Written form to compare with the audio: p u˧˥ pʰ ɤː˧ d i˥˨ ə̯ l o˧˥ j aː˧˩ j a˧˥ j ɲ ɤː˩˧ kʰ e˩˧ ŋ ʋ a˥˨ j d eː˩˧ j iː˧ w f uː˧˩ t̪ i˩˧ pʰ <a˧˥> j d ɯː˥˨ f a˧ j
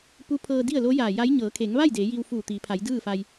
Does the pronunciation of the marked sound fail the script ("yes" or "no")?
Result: yes